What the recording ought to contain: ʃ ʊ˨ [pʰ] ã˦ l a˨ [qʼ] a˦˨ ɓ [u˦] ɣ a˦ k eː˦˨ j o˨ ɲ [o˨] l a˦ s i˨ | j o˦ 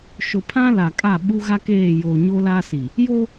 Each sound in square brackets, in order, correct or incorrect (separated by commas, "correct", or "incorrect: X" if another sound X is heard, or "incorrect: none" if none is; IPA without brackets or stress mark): correct, incorrect: kʼ, correct, incorrect: o˦